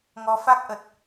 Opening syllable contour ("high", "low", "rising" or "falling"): rising